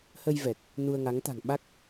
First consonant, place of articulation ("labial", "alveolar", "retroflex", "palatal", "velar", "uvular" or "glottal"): glottal